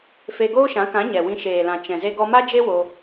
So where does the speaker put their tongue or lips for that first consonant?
lips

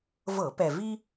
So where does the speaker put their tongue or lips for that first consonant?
lips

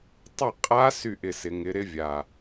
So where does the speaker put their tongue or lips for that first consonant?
tongue tip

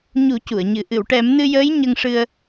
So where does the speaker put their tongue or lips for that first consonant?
palate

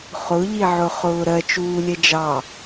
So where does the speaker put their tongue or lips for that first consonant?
uvula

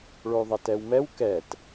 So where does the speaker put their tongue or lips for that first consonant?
retroflex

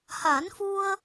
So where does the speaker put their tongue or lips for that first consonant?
throat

